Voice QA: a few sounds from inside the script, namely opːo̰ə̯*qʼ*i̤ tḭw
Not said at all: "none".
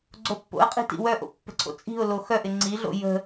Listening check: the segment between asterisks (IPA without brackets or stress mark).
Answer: qʼ